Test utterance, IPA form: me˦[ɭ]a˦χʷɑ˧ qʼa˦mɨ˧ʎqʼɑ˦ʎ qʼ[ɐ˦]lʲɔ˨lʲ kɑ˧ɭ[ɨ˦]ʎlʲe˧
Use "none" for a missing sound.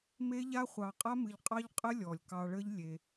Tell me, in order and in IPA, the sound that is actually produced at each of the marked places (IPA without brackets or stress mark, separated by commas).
ʎ, ə˦, ə˦